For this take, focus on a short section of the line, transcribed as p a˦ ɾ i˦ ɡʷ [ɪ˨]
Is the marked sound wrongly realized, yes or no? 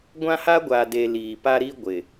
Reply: no